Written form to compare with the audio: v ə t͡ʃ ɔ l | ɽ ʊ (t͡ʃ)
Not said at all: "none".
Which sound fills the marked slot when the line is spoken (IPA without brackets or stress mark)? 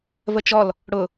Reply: none